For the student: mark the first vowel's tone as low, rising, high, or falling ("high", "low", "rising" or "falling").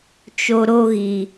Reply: low